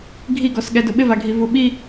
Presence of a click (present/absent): absent